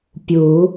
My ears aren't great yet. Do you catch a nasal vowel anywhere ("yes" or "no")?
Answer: no